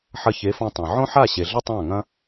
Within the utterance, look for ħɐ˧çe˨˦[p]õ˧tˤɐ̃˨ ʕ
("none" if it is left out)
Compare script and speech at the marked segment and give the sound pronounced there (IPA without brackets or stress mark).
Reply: f